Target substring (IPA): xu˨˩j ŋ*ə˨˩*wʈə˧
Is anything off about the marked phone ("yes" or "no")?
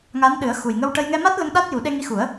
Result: yes